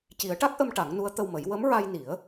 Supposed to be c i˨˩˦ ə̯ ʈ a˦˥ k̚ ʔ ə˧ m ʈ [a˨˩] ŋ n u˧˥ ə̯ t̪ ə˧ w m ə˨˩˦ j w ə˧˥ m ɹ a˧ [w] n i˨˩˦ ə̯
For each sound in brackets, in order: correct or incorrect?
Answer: incorrect: a˨˩˦, incorrect: j

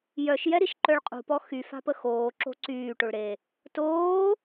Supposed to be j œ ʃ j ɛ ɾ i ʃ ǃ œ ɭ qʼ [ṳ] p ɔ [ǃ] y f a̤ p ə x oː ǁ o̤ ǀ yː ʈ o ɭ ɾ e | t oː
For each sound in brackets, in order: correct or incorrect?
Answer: correct, incorrect: x

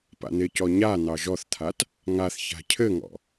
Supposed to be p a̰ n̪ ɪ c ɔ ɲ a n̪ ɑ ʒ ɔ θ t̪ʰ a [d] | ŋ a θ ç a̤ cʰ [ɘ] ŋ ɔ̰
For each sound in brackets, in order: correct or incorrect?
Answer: incorrect: t, correct

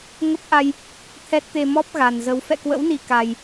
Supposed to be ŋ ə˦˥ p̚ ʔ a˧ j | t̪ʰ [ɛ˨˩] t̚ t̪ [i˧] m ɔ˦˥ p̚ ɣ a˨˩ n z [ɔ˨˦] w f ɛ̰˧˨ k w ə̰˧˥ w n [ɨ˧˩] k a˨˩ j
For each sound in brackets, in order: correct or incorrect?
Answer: incorrect: ɛ˦˥, incorrect: e˧, incorrect: ə˨˦, incorrect: i˧˩

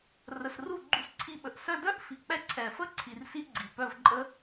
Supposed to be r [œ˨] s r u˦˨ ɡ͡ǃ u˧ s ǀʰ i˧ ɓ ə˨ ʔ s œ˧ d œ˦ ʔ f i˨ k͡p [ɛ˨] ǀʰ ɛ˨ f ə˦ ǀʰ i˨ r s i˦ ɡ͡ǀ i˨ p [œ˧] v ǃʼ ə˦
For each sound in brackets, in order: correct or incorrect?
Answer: incorrect: ə˨, incorrect: ɛ˧, correct

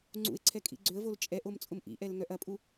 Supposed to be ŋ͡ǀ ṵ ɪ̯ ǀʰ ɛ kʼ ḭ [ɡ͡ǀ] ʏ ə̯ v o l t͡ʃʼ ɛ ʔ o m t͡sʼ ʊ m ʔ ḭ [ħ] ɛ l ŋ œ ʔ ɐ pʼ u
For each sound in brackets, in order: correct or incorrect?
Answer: correct, incorrect: ʔ

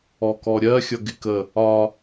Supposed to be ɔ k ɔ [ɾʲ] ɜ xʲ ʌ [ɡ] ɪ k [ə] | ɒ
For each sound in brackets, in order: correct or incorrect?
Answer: correct, correct, correct

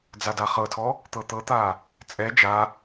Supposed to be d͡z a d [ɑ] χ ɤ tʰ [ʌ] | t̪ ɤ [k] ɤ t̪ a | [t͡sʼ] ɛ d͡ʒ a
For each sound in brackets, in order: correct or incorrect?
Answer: incorrect: a, incorrect: ɔ, incorrect: t̪, correct

